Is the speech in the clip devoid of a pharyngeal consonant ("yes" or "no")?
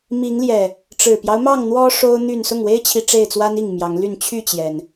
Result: yes